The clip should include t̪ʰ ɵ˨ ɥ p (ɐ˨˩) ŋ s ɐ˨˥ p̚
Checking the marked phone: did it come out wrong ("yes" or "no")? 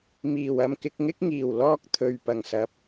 no